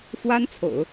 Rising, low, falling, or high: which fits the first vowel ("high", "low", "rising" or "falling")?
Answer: high